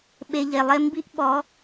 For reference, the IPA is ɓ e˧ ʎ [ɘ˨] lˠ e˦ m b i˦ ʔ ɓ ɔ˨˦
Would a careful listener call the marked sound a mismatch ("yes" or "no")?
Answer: yes